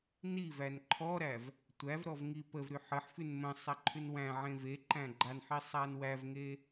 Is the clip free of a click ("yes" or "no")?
no